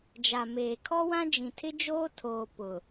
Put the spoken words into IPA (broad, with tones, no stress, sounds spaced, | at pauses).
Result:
d͡ʒ a˨ m eː˨ kʰ ɔ˦ w ã˦ d͡ʒ ĩ˨ tʰ ɪ˦ d͡ʒ oː˦ tʰ oː˨ p ʊ˨